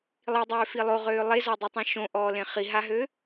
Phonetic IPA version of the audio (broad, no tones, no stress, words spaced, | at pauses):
lˠidˤøːfi lˠoʁøː lˠezɔdˤytˤẽ ʃõʔɔːlẽ χiɦaɦø